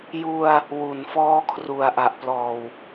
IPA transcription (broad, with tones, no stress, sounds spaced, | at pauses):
j u˧ a̯ | w u˨˩ n f ɔː˦˥ kʰ r u˨˩ a̯ ʔ a˨˩ ʔ p l ɔː˨˩ w